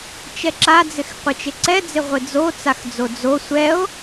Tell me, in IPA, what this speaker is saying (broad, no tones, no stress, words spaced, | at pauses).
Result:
t͡ʃɛǁad͡zɪx qʷɪt͡ʃɪǀɛd͡zɪ ʁʷɪd͡zot͡saxd͡zo d͡zo sʷɛo̯